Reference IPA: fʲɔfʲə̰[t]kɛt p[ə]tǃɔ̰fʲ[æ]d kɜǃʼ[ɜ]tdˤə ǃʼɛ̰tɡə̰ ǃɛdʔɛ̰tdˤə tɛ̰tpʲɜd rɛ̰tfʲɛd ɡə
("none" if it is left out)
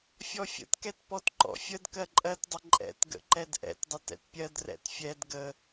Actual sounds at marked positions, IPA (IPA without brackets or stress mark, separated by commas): t, ɔ, ə, ɜ